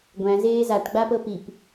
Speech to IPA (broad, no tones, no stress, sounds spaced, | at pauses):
ɡʷ æ̃ z eː z a ʈ ɡ͡b a p ɤ p i p